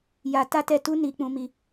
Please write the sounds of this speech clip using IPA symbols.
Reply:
ja˧ ta˦tɛ˦˨ tu˧ ni˧k͡pũ˧mi˧

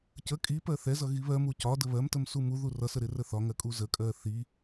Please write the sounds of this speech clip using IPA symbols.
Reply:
cə kʼi pɜθɛzʌ ɣiβɜmu cɒ dəβɜmtəm sumuðu rʌsə ɾɪrəθɒŋɜ kʼuzəkʼɜ θi

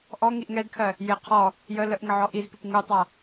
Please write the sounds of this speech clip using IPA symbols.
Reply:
ʔɔ ŋiʔŋɛdkʰɜ | jɪ qʰɔ | jə ləʔŋə ʕɔʔizpip ŋutˤa

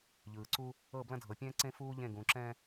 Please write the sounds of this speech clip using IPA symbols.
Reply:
ʎɯː˨ǀu˦ | ɤ˦˨ blɐ̃˦dʱɤ˨pʲɛ̃ː˦ ǀẽ˦fuː˦ ʎẽ˦˨ɡũ˨ ǁɛ̃˦

